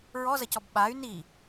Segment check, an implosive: present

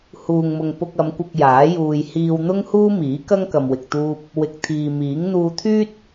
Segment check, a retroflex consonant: absent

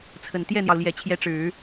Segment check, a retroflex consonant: present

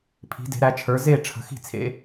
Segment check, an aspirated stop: present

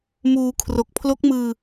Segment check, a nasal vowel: absent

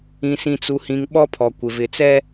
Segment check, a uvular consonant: absent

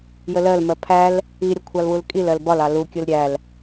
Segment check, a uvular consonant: absent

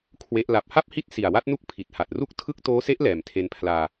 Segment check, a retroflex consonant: absent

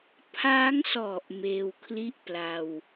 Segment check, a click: absent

